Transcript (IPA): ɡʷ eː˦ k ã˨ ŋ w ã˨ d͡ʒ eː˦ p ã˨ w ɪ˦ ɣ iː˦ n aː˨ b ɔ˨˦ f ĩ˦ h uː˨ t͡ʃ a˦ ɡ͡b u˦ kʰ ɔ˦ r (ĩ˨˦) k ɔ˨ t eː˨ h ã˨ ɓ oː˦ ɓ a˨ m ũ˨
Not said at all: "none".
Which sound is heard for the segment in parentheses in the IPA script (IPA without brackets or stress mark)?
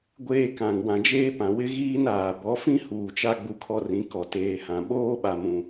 ĩ˨˦